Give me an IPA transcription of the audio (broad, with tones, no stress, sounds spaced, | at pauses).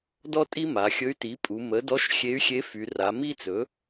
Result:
d ɔ˥ tʼ i˥ m a˩˧ xʲ ɵ˧˥ y̯ t i˩˥ pʼ u˩˧ m ə˩˥ d ɔ˧˥ ʃ xʲ e˧˥ y̯ xʲ e˧˥ f y˩˧ r a˩˧ m i˥ t͡s ɵ˩˥